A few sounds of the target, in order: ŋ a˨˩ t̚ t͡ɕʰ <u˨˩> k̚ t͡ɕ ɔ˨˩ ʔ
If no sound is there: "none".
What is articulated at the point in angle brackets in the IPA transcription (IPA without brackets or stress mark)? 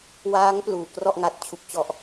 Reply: u˨˩